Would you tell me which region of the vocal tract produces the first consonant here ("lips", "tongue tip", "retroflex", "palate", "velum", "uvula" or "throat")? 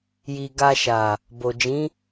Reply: palate